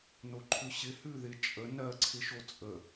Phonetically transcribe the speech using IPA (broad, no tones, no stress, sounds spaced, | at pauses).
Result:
n o ǃʰ ʉ ɕ ɪ h ʉ ð ɪ t͡ʃʼ ə n ɜ ǀʰ ɪ ʃ o t͡sʼ ə